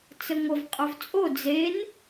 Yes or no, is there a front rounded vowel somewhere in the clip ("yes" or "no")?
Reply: yes